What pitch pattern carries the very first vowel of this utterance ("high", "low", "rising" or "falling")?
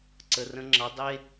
low